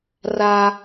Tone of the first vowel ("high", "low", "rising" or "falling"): high